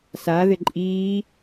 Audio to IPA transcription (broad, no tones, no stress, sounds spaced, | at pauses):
s a ð ɪ ǃʼ iː